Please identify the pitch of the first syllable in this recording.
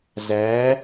rising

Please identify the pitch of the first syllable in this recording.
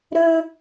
low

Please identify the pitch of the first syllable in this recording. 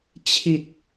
low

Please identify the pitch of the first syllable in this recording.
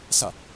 falling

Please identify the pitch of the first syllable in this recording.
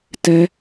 high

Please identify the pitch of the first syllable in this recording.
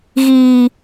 high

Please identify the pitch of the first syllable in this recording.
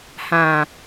low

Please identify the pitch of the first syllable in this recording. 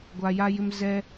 high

